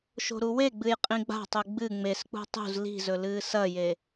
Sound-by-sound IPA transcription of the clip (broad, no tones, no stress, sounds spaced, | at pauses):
ʃ o̤ ɾ u w e ɡ͡b ɨ j qʼ ĩ ɡ͡b a̤ tˤ u ɡ͡b ɨ ŋ͡m e s k͡p ṳ tˤ ṳ z l i̤ z ɵ l ɨː s ɐ j e